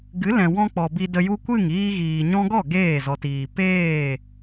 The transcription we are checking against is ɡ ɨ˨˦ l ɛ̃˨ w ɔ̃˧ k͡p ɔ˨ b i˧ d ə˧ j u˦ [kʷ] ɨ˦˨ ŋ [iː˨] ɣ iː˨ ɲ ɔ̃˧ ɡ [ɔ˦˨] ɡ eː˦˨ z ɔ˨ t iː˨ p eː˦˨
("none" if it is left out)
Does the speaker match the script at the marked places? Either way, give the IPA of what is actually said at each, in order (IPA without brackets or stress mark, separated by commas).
kʷ, iː˧, ɔ˦˨